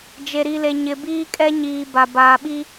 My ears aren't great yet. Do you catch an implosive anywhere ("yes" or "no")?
yes